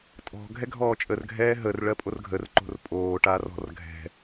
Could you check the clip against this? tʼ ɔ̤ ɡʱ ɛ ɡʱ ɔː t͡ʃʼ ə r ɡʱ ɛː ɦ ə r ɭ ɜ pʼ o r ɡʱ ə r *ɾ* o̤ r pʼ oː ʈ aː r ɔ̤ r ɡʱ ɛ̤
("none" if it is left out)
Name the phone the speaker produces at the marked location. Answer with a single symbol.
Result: ǃ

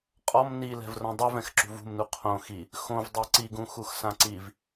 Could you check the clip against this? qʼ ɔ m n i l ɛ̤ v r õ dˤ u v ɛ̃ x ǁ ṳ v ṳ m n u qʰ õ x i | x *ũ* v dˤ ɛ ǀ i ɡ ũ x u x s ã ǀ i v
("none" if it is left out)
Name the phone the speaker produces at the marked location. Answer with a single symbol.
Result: õ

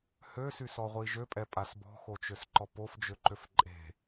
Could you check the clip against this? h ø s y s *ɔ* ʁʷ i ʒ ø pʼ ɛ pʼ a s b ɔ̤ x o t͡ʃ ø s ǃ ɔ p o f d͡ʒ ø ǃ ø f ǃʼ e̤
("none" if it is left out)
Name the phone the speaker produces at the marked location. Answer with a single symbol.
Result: ɔ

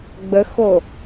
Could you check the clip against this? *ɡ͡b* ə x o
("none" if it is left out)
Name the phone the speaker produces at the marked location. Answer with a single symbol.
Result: ɡ͡b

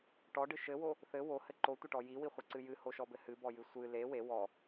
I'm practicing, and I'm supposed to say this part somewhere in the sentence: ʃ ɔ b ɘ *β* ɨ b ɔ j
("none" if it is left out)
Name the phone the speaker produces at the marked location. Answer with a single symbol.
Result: h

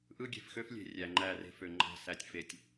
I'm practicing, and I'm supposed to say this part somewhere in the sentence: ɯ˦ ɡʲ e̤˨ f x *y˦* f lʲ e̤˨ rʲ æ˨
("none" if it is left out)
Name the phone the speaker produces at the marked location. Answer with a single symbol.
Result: ø˦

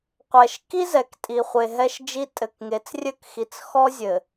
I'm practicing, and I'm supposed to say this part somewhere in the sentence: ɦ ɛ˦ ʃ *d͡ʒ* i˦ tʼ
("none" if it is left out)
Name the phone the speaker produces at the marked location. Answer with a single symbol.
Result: d͡ʒ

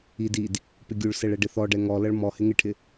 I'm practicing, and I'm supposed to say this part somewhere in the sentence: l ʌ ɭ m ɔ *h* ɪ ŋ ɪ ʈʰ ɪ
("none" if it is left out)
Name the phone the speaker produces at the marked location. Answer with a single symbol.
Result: h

